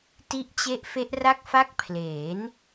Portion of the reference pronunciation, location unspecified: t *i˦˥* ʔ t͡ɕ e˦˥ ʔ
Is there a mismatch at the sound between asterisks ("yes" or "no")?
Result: no